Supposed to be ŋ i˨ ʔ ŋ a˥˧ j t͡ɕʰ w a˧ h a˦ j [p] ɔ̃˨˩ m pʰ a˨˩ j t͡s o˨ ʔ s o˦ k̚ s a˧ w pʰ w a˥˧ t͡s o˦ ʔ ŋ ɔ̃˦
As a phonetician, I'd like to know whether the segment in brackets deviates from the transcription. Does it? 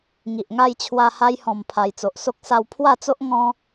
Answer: yes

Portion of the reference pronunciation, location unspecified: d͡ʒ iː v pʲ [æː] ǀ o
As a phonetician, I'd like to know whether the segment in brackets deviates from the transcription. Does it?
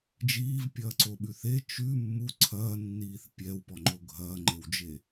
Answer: yes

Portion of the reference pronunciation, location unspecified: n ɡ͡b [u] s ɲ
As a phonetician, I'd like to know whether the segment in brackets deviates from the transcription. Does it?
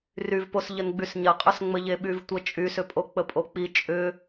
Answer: yes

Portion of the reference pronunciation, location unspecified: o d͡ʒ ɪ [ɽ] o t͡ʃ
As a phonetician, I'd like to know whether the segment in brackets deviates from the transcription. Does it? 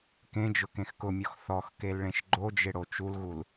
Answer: no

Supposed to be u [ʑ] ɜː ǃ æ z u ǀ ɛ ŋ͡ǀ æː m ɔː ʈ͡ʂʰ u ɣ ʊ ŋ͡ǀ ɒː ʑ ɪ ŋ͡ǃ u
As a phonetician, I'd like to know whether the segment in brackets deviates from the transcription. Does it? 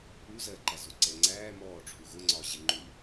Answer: yes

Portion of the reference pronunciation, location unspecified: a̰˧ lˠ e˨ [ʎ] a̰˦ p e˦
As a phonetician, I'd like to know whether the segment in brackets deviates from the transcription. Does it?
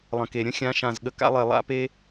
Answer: yes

